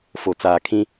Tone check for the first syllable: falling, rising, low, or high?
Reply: low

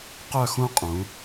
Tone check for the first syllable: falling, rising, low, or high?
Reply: falling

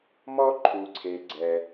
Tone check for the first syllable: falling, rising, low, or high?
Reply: high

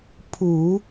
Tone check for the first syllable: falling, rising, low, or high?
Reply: low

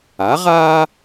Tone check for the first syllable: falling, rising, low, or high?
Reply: rising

